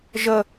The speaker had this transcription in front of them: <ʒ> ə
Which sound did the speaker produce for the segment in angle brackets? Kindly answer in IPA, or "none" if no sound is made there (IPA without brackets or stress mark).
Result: ʒ